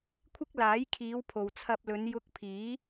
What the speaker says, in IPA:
kʷʰ ɪ˥ k̚ l aː˨˥ j kʰ iː˨˧ w pʰ o˨ w t͡sʰ ɐ˧ p̚ l ɵ˨˧ n j ʊ˧ k̚ pʰ iː˨˥

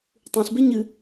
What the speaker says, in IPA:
tˤ ũ ɬ b e ɲ ɨ

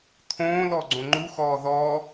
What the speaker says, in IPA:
t̪ʰ õː l ɔ ɡ͡ǀ õ ŋ͡ǃ u x ɔː ð ɔ

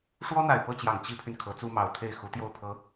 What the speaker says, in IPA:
ʂ w ɔ˥ n̪ a˨˩ ɪ̯ p ɤ˥˩ t͡ɕ j ɑ˨˩ ŋ t͡ɕ i˥ pʰ y˨ n kʰ ɤ˧˥ t͡s u˥ m ɑ˧˥ ʊ̯ t̪ʰ e˥˩ ɪ̯ x u˧˥ t̪ j o˥˩ ʊ̯ pʰ ɤ˧˥

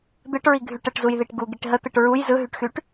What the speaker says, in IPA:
d̪ ɯ ʈ ɹ i ɡʱ y ʈ ə ʈ z u j ð i ʈ ɡ u ɡ i ʈ ɦ ə t̪ ɯ ʈ ɹ u j z ɯ ɦ y ʈ x y ʈ

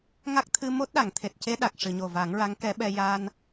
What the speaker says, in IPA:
ŋ a˦˥ k̚ t̪ʰ ɨ˧ m o˦˥ t̚ ɗ a˨˩˨ ŋ t̪ʰ e˨˩ t̚ c e˧˥ ɗ a˨˩ k̚ ʂ ɨ˨˩˨ ɲ o˨˩ v a˨˩˦ ŋ ɹ a˧˥ ŋ k ɛ˧˥ ɓ ɛ˧ j a˧ n

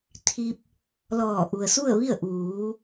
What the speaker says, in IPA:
t̪ʰ i˧ p̚ | l ɔː˧˩ ʔ u˩ ə̯ s u˥˨ ə̯ ʋ i˥˨ ə̯ ʔ uː˩˧

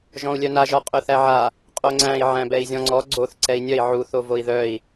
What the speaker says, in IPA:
ʒ ɔ̃ u̯ lʲ œ n a ʒ ɒ qʼ œ θ æ ʕ a | qʼ o ŋ͡ǀ æ̃ i̯ ʕ æ̃ b ɛ i̯ zʲ ɔ̃ ŋ͡ǀ ɔ ɡ͡ǀ o θ ǀ ɛ i̯ nʲ œ i̯ ʕ u θ o v o i̯ ð œ i̯

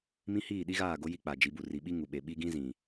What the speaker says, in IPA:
m ĩ˦ h iː˦˨ ɗ i˦ ɣ aː˦˨ ɡ o˦ j i˦ k͡p a˨ d͡ʒ i˨˦ b u˨ r i˨ ɓ i˦ ŋ u˨ ɓ e˨ ɓ i˦ ɡ ĩ˦ z ĩ˨

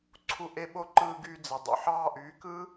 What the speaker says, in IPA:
ǀʰ u˧ ʔ e˦ ɓ o˦ ǃ ɯː˧ ɡ yː˧ d͡z e˨ dˤ ṵ˨ ħ ɑː˧ ʔ yː˨˦ k ɯː˦

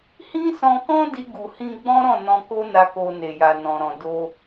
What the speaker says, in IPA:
h ĩ˦ s ɔ̃˧ k ɔ̃˦ d i˦ ɡ u˧ h ĩ˦ ɡ͡b ɔ̃˦ ɾ ɔ̃˦˨ n ɔ̃˧ k o˦ n a˧ k o˧ n e˨ j a˨ n ɔ̃˨ ɾ ɔ̃˨ d o˧

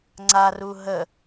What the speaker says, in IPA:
ŋ͡ǀ a r u ɦ ə

